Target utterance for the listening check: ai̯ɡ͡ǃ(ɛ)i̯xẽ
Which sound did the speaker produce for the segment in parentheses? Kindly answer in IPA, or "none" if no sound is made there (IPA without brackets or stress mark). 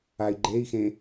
e